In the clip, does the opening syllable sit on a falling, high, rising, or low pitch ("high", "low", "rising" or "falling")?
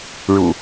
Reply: low